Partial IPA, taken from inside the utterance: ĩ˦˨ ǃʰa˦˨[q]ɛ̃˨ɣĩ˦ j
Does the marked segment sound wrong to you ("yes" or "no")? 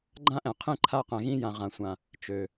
no